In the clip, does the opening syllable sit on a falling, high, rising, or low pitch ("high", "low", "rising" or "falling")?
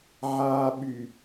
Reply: low